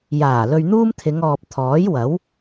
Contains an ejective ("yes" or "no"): no